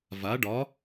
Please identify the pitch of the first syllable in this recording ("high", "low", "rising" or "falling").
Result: rising